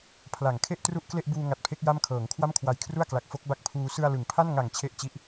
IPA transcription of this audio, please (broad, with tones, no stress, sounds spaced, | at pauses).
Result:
pʰ l a˩˦ ŋ kʰ e˥˩ ʔ t r u˥˩ ʔ k l e˥˩ ʔ b uː˧ ŋ a˨˩ t̚ pʰ e˦˥ k̚ j a˥˩ m kʰ ɤː˩˦ ŋ kʰ w a˥˩ m kʰ w a˨˩ j kʰ r u˥˩ a̯ k l a˨˩ k̚ f o˦˥ k̚ b a˦˥ k̚ pʰ uː˧ s ɯ˧ a̯ l ɯ˩˦ ŋ pʰ a˥˩ n ŋ a˨˩ ŋ t͡ɕʰ e˥˩ ʔ t͡ɕ i˦˥ ʔ